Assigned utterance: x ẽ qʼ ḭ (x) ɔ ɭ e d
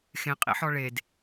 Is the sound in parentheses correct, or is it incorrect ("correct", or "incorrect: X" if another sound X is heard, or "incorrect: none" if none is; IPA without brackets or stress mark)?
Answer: incorrect: ħ